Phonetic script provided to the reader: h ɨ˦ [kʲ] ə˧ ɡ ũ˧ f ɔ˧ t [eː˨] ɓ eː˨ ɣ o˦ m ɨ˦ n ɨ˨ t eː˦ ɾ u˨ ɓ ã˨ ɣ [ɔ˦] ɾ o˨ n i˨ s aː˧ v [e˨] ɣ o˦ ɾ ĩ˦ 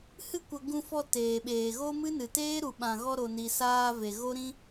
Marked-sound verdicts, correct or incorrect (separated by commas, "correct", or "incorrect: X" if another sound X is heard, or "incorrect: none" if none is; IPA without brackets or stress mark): incorrect: kʷ, correct, incorrect: ɔ˧, correct